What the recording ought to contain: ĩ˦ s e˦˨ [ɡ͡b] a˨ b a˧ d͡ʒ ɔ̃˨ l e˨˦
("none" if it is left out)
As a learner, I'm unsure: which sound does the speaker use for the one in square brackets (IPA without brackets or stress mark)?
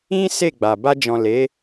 ɡ͡b